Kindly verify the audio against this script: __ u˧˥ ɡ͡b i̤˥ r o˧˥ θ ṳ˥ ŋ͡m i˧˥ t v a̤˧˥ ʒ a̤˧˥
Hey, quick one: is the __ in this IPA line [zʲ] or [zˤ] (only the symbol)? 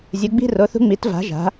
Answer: zʲ